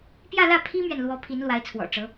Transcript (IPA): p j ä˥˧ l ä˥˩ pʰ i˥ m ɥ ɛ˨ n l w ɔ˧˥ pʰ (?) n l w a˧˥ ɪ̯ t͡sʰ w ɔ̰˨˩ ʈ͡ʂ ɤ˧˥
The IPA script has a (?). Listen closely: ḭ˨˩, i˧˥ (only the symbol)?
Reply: i˧˥